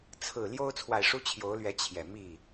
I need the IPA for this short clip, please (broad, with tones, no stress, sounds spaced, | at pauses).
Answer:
t͡sʰ ɹ̩˨˩ l j o˦ ʊ̯ t͡sʰ w a˨ ɪ̯ ʂ u˦ t͡ɕʰ j o˨˦ ʊ̯ l ɥ ɛ˨˦ t͡ɕʰ j ɛ˨˩ m i˥˨